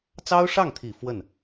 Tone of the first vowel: high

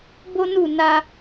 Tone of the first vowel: high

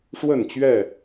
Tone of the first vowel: falling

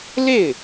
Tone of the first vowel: falling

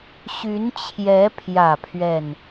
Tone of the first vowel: rising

